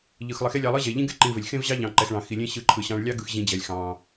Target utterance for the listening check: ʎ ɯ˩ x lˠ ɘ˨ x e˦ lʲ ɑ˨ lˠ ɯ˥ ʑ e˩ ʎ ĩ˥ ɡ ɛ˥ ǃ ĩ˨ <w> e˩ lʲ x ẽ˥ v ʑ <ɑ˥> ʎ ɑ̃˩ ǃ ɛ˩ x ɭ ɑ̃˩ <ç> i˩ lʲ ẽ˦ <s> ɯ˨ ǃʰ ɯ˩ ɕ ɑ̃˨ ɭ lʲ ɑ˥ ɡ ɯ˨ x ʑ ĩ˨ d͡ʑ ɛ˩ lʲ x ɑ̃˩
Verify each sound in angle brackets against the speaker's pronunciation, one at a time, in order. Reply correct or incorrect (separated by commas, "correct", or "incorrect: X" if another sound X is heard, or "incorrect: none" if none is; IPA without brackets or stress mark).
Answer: incorrect: v, correct, incorrect: x, incorrect: ɕ